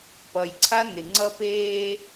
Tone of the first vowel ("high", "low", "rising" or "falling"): low